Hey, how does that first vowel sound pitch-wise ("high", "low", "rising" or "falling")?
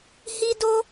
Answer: high